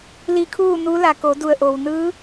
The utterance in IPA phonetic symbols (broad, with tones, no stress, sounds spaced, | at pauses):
l i˧˥ kʰ uː˥˨ n u˧˥ l a˩ k o˩˧ d u˧˩ ə̯ ʔ o˩ w n ɯː˧˥